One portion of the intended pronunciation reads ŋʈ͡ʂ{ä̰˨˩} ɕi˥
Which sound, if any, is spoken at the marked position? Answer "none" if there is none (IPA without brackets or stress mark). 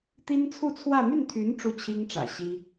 ä̰˨˩